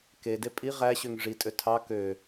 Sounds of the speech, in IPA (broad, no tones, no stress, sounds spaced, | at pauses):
k e d e pʼ i ʁ æ ɕ ø ŋ ʐ i tʼ ø tʰ ɑ k ø